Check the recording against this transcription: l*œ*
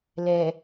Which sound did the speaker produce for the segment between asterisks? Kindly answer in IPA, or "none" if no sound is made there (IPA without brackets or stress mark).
ɛ